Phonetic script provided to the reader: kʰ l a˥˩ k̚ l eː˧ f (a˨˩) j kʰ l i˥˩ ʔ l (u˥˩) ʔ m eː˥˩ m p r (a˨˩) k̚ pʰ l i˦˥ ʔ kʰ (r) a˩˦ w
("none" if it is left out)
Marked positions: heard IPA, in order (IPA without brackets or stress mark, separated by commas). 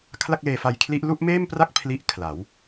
a˧, u˥˩, a˥˩, l